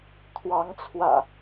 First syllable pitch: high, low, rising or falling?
rising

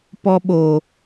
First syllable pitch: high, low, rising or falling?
high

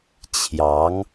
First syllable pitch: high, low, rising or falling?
rising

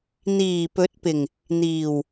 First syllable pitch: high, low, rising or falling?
low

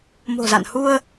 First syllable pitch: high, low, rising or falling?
low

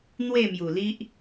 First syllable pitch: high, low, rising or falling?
falling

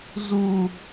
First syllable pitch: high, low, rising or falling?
high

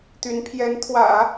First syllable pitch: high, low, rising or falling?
rising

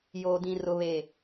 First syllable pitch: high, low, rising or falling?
low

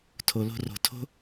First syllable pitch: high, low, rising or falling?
low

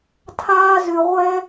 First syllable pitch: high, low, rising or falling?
high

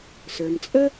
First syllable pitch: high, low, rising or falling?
low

